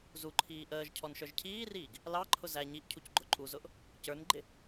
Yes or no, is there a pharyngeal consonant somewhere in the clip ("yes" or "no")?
no